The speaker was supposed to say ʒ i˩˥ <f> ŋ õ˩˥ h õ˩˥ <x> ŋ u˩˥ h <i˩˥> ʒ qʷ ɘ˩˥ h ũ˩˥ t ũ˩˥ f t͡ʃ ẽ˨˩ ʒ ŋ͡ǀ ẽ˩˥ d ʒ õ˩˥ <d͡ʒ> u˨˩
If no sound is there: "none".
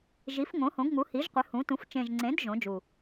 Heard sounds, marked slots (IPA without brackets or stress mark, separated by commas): f, ɡ, i˩˥, d͡ʒ